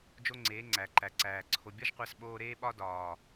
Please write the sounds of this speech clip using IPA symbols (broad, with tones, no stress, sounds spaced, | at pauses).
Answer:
d͡ʒ o˦ ŋ͡ǀ eː˨˦ ŋ͡ǀ æ˨ ǃ æ˨ ǀ æː˨ ǀʰ o˧ bʲ ɒ˦ ʒ qʷ æ˧ s ɓ oː˧ ɾ eː˦ ɓ ɒ˦ d ɒː˨